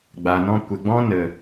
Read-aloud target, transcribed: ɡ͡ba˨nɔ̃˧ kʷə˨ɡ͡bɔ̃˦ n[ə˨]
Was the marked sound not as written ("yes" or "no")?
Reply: no